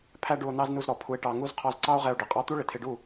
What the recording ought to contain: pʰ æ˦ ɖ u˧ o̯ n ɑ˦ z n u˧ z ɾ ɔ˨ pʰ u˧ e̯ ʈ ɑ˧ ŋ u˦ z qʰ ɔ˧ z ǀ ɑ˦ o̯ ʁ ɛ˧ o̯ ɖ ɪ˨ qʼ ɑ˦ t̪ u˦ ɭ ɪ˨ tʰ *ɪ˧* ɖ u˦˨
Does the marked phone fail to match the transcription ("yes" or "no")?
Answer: no